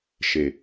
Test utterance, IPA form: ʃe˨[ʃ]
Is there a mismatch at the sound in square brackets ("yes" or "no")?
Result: yes